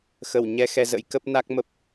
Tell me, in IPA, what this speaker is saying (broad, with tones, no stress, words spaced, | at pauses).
xə˧˩w ɲɛ˧ xɛ˧zə̰˧˥jkə˦˥p̚ na˦˥k̚mə˦˥p̚